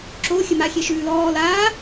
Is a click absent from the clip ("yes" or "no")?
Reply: no